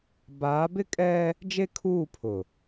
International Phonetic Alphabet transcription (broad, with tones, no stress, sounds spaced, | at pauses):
b aː˨˦ b ɪ˦ kʼ ɛ˦ | d͡ʒ e˦ kʰ uː˦˨ pʰ ʊ˨